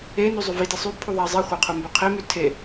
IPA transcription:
e n y zˤ y v i t i sˤ y pʰ u ðˤ æ zˤ i χʷ i qʰ u m b ø qʰ e m y tʰ e

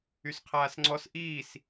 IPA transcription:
y s qʰ aː s ŋ͡ǀ ɔ s ʔ iː s

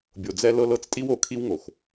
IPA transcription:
bʲ o˨ d͡z ɛ˦ l ɤ˦ l ɤ˦ t͡s tʼ i˦ w o˨ kʰ i˦ w ŋ o˨ x

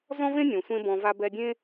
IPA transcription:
z ɔ̃˦ v ẽ˦ nʲ õ˨ sʷ ẽ˦ b ɔ̃˧ v a˦ b ɛ˦ dʲ ẽ˦

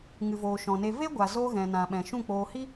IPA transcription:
ŋ ɨ˨ v oː˨ ʃ ɔ̃˨ n e˧ v e˦ ɡʷ a˨ z o˧ ɣ ɛ̃˨ n ã˨ ɓ ɛ̃˨ ʃ ũ˦˨ k͡p oː˧ h i˦

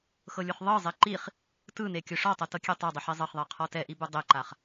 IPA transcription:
x ɤ lʲ u χ ðˤ ɤ zˤ e ǃ i χ | t ɯ n e kʲ o ʂ ɔ tˤ ɤ t ɤ kʲ e tˤ ɤ dˤ ɯ ħ i zˤ ɤ χ ðˤ ɛ qʰ ɔ t ɛ ʔ i b u dˤ e ǃ a χ

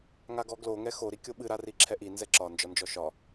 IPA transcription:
ŋ a ɡ ɔ ɡ l o ŋ ɛ x o ɾ i kʲ o ɓ ɨ ɾ a r i ǁʰ ɛ ʔ i n z ɛ ǁ ɒ n d͡ʒ ɒ n d͡ʒ ɔ ʃ ɒ

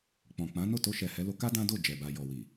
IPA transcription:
k͡p ɔ̃˨ k͡p ã˨˦ n o˦˨ t o˧ ʃ ɛ˨ h ɛ˨˦ l o˧ k a˦ d ã˦ d o˦˨ d͡ʒ ɛ˨ b a˨ j ɔ˨ w i˨

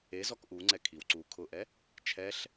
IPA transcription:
e z ɔ k ʔ u ŋ͡ǀ ɛ kʰ i w ǀ u kʰ ʊ ʔ ɛ | t͡ʃʰ ɛ ɬ

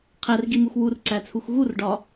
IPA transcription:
qʰ æ r ɡ i m u x w u r ǀ æ t͡sʰ u x ɣ u r ɖ ɒ

